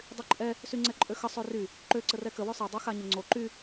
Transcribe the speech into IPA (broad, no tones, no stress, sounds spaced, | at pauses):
dˤ y ǃʼ ɛ | s y ŋ͡ǀ ɛ ǃʼ ø x ə sˤ ø r y | ǃ ø ǀ ə r ɛ k ə w ø sˤ ɛ dˤ u x a ɲ ə ŋ͡ǀ o ǃ y